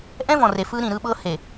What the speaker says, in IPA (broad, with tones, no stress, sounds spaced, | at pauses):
ʔ ɛ̃˦ v ɔ̃˨ r e˨ f ɯ˦ ɾ ĩ˨ ɾ ɯ˦ ɓ ɤ˦ h e˨